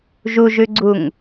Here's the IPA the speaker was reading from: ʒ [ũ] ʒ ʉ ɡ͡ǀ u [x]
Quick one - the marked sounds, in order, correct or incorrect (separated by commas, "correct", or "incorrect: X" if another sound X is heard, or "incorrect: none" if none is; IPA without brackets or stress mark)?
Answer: incorrect: u, incorrect: ŋ